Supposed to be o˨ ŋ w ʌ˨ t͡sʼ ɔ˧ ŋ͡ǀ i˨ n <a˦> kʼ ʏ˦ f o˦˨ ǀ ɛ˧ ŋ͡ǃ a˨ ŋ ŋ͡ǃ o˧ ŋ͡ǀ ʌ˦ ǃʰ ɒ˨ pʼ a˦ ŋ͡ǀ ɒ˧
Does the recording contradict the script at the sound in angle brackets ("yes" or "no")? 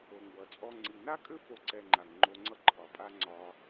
no